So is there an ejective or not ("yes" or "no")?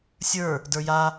no